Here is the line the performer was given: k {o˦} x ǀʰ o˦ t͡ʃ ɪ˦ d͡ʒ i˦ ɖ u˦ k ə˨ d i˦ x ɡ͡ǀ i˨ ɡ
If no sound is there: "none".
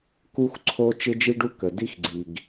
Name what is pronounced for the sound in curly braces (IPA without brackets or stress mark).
u˦